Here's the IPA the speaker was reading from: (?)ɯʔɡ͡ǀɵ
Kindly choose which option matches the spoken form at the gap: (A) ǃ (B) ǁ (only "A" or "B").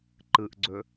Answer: A